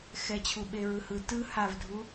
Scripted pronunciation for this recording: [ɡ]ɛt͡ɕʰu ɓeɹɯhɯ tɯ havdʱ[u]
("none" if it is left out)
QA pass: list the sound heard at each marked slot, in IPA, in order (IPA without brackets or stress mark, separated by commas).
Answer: x, u